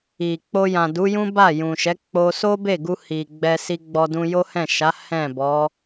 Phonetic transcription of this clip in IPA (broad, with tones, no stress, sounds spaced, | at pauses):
i˨ k͡p o˧ j ã˨ d u˨˦ j ũ˦ b a˦˨ j ũ˨ ʃ ɛ˨˦ k͡p o˧ s o˦ b e˦˨ ɡ u˧ h i˨ ɡ͡b ɛ˧ s i˧ ɡ͡b ɔ˧ d ũ˧ j o˦ h ɛ̃˦˨ ʃ a˨˦ h ɛ̃˦˨ b ɔ˨˦